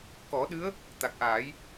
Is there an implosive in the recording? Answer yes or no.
yes